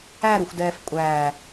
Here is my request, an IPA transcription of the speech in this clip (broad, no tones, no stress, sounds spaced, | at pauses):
æ ɾ u xʷ d ɛː f kʷʼ æː